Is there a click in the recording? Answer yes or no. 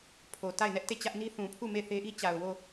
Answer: no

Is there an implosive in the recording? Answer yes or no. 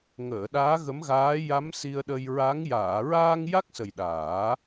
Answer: yes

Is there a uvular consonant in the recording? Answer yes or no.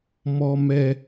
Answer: no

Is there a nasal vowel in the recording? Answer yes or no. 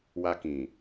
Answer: yes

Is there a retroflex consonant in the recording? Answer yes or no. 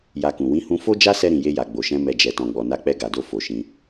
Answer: no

